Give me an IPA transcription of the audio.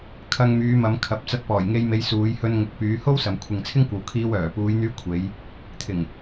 kʰɐ˧ŋmyː˨˧mɐ˨˧m kʰɐ˨˥p̚ t͡sɐ˧t̚pɔː˨˩jŋe˧jme˨˧j suː˨˧jhɵ˧nŋʊ˨k̚ pyː˨˧ho˥wsɐ˨m kʷʰɪ˨ŋt͡sʰɪ˥ŋkʷɐ˨wkʰiː˧w œː˨˩puː˨˧jn̪yː˧ kʷʰe˨˧j | t̪ʰɪ˨˩ŋ

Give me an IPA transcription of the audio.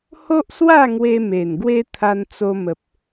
ho˦ʔswa˥˧ŋwe˧ me˨˩nɡwe˦ t̪ʰa˧nt͡so˧mə˨p̚

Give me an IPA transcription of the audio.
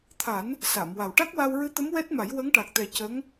t̪ʰa˨˩˦n | sa˨˩˨mwa˨˩w ʈa˦˥k̚wa˧wɹɨ˧˥t̪ə˧˥m wɛ˦˥t̚ma˨˩˦j wə˧˥ŋʈa˨˩k̚t̪ɛ˨˩ cə˧˥ŋ

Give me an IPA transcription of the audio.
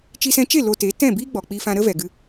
t͡ʃi˧sɛ̃˧t͡ʃe˦˨ lo˧te˨˦ tɛ̃˦˨biː˦ɡ͡bɔ˨ k͡pi˧fã˧ɾə˦ vɛ˨ɡɨ˧

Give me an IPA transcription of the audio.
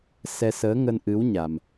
sɛ˧səː˨˦ŋə˧nʔɨ˨˦w ɲa˧m

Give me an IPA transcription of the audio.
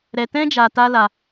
ɾɛ˧tɛ̃˦d͡ʒa˧ ta˦ la˧

